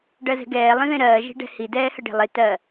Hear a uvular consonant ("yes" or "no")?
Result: no